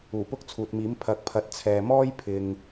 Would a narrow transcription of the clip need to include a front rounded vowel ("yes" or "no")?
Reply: no